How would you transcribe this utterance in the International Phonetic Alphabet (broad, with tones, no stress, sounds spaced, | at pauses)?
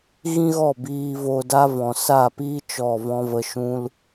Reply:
ɣ ĩ˦ ɣ ɔ˦˨ b iː˧ v o˧ d a˦ v ɔ̃˨ s a˦˨ p iː˦ t͡ʃ ɔ˦˨ v ɔ̃˦ v ə˧ ʃ ũ˧ l